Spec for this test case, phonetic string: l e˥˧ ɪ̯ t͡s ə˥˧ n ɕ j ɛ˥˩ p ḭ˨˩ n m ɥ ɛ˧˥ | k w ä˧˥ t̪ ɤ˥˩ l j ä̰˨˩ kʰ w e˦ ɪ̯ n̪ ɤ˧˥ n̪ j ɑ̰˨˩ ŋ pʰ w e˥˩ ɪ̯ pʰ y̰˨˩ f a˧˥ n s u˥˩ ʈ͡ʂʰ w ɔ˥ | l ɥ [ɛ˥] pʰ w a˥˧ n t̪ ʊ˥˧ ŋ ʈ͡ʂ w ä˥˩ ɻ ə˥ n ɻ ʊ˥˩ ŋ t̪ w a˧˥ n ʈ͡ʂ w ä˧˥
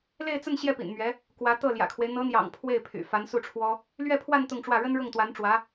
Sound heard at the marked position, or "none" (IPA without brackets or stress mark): ɛ˥˧